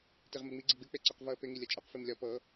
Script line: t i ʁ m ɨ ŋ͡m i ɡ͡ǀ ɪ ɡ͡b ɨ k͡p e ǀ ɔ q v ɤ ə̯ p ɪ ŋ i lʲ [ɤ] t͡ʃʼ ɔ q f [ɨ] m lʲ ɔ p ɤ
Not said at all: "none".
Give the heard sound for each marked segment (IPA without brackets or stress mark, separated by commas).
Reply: ɤ, i